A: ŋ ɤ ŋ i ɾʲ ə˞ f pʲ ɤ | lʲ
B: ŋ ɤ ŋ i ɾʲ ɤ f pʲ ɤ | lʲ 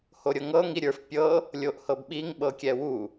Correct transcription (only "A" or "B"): A